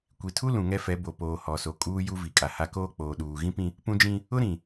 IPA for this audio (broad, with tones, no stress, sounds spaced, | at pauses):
kʷ i˨ tʰ u˦ l ũ˨ ŋ ɛ˦ f ɛ˨˦ b o˨ p oː˨ h ɔ˨ s o˨ kʼ uː˦ j u˦ v i˨ kʼ a˨ h a˦ k oː˦ k͡p oː˨ ɗ uː˨ ɣ ĩ˦ p ĩ˦ | p ũ˦ d͡ʒ ĩ˦ | ʊ˦ ɾ ĩ˨